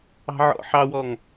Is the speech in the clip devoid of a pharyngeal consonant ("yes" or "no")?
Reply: no